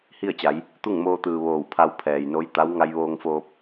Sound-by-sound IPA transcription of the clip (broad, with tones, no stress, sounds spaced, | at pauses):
h i˥˨ ə̯ t͡ɕ a˩˧ j | t̪ u˥˨ ŋ m oː˧ t̪ ɯː˩ ʋ oː˧˩ w pʰ a˧ w pʰ ɛː˩ j n o˧˥ j t̪ a˧˥ w ŋ a˧ j ʋ oː˧ ŋ f oː˧ p̚